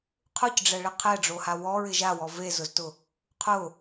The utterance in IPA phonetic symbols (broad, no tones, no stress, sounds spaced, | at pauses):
qʰ ʊ c ɖ͡ʐ ɛ ɭ ɪ qʰ ɛ ɖ͡ʐ o h a w ɔ ɹ ɪ ʒ a w ɔ v e z ʊ z t ʊ | qʰ ʊ